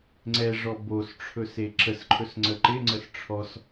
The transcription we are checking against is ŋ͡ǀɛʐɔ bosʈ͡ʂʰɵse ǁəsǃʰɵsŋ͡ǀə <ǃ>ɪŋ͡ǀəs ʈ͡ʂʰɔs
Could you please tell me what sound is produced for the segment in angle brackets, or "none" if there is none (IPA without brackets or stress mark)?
ǃ